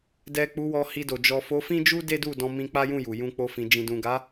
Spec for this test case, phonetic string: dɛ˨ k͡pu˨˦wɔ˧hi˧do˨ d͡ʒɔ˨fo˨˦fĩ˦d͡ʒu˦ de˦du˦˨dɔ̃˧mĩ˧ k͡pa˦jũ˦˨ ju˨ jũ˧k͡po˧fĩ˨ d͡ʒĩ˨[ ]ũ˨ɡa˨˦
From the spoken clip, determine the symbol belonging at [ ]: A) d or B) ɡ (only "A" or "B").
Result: A